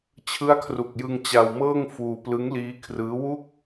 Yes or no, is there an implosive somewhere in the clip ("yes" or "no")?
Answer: no